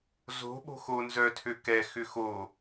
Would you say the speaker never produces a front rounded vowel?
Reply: no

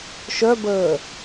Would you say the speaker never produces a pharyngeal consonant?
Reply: yes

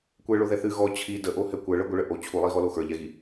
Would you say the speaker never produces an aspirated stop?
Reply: no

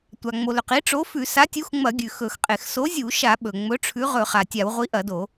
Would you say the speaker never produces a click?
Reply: yes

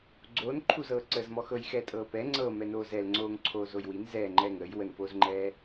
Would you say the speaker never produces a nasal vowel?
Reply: yes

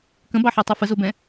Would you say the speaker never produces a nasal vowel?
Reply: no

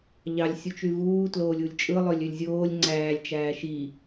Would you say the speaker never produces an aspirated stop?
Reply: yes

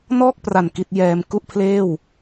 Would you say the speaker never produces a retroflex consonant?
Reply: yes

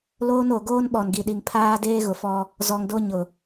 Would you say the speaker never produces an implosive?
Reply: no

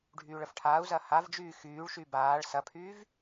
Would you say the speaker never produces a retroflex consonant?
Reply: no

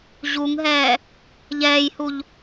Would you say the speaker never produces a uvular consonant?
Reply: yes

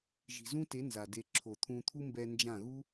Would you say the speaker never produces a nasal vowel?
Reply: no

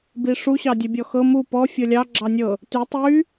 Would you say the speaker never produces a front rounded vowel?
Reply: no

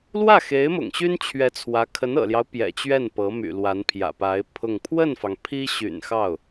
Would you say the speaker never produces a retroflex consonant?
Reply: yes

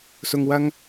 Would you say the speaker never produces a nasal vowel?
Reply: yes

